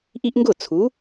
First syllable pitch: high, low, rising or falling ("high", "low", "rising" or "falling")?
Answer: high